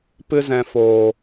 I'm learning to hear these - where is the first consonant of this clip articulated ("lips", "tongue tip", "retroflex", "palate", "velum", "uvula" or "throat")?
lips